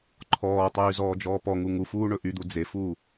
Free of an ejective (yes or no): yes